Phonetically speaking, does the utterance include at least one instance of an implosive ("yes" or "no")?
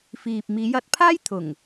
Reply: no